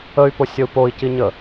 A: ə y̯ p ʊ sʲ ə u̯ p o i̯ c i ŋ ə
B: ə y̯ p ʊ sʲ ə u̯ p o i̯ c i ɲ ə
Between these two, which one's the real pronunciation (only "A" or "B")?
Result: B